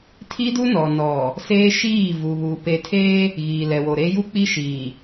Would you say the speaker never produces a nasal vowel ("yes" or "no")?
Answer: yes